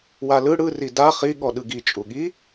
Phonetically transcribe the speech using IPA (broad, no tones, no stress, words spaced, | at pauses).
walɯ ɽɯ rida χi ɠɔɗɯɡi t͡ʃʼuɠi